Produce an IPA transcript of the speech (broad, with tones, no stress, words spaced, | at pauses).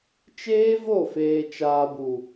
t͡ʃeː˦vo˦˨ feː˨t͡ʃaː˨bu˨